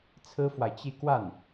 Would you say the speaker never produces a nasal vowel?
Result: yes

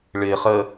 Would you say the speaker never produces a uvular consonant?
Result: no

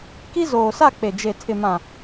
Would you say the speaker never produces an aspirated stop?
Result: no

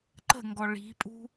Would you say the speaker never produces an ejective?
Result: no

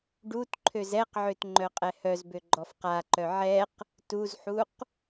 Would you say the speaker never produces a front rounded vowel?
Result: no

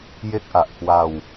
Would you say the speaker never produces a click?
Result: yes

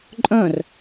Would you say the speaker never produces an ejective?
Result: no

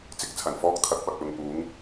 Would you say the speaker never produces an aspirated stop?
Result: no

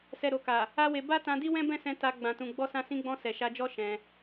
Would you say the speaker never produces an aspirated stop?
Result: yes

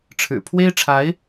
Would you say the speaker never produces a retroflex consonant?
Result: no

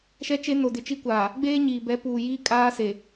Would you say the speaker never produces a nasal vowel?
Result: yes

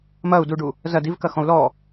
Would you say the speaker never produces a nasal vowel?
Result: no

